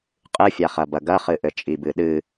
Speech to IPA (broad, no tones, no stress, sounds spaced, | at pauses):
qʼ ɨ fʲ a χ ɐ b ɐ ɡ ɐ χ ɨ ʔ ɘ t͡ʃʼ i b ɨ ɗ ɨ